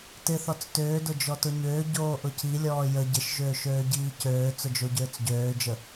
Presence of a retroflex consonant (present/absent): absent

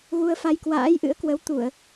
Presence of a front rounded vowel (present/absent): absent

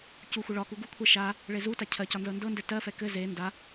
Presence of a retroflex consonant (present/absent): present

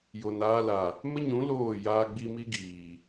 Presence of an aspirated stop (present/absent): absent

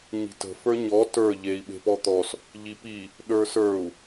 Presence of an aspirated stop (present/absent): absent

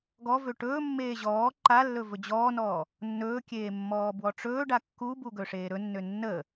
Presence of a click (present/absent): present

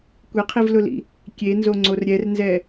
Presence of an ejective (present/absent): absent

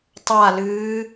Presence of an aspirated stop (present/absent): absent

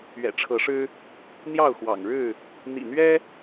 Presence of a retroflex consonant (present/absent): present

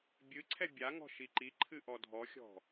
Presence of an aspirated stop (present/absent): present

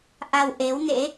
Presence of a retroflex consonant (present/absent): absent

